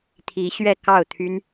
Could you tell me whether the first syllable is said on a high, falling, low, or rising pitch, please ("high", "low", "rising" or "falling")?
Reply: rising